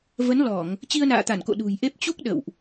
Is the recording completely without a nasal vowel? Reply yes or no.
yes